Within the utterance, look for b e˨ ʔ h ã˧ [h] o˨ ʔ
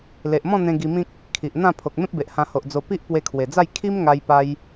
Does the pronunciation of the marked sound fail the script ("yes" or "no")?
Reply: no